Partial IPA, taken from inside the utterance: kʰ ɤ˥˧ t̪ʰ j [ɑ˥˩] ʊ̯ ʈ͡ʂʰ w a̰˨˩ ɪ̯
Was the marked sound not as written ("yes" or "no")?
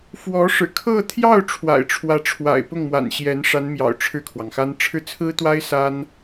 no